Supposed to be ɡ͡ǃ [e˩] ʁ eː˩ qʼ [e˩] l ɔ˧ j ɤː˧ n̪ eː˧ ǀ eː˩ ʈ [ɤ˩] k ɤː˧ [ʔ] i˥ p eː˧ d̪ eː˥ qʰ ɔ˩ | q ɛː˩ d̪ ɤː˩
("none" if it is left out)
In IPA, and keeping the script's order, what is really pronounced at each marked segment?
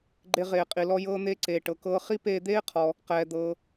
e˧, i˩, ɤ˩, χ

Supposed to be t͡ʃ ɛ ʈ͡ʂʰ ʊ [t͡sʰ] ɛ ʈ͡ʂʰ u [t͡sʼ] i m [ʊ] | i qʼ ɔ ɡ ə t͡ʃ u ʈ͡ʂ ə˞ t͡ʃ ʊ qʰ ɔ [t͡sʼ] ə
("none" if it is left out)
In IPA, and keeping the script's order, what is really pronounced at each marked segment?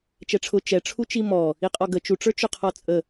t͡ʃ, t͡ʃ, ɔ, t͡sʼ

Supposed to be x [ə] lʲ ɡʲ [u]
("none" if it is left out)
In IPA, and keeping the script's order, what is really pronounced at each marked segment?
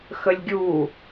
ə, u

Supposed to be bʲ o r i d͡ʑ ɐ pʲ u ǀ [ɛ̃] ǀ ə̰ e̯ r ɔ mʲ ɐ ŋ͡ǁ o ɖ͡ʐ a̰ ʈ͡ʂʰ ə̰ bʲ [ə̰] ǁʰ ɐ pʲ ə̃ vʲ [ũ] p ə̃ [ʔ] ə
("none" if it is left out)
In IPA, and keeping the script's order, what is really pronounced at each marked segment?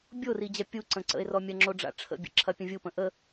ə̃, ə̰, u, ʔ

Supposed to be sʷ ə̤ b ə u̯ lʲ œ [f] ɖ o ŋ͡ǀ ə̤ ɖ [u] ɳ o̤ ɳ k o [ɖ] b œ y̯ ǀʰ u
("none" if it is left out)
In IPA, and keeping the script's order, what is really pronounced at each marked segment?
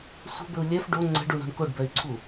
f, u, ɖ

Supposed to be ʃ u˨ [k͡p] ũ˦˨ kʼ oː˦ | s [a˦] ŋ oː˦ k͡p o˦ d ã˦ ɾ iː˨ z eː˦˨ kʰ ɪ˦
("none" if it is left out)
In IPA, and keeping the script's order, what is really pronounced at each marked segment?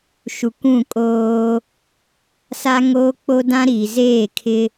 kʷ, a˦

